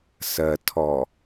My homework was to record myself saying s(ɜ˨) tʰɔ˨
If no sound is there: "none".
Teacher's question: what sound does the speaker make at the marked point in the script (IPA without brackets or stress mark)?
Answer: ɜ˨